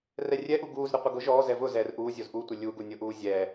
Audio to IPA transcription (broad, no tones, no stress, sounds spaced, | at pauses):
r ɛ rʲ ɛ ʔ u ɡ uː z ɾ ɪ qʷ ɪ ɡ ʊ ʒ ɔː z ɛ v ʊ z ɛː r ʔ uː zʲ o z ʔ u tʷ ɪ lʲ u ɡ u nʲ ʊ ʔ uː zʲ ɛː